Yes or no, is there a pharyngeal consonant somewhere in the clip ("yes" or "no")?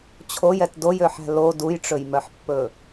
yes